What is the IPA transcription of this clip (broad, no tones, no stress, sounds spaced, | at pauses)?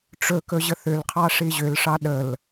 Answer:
ʈ͡ʂ ɵ k ɵ ʑ ə θ ʏ l qʰ ɑ ʂ i ʑ ʏ l ʂ ɑ ɗ ə l